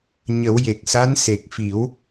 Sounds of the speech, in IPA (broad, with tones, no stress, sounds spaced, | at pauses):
ɲ ə˨˩˦ w j e˨˩ k̚ s a˧˥ n s e˨˩ k̚ f i˨˩˦ w